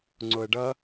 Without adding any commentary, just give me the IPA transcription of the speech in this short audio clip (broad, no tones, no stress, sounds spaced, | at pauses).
ŋ͡ǀ o ə̯ ɖ ʌ